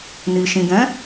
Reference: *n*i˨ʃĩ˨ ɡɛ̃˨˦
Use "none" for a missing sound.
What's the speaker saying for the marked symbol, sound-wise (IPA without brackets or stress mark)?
n